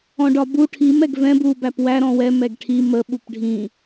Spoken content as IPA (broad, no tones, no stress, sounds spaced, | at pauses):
ɔ̃ ɖ ɒ b u ʈʰ i m ɛ ɡ v ɛ̃ b u b æ p w æ ɾ ɔ̃ w ɛ m ɛ ɡ ʈʰ i m ə ɓ u p ɖʱ ĩ